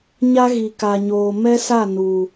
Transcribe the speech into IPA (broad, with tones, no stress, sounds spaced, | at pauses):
ɲ a˦ ɣ i˨ k a˨ ɲ oː˨ m ɛ˦ s a˦˨ n u˨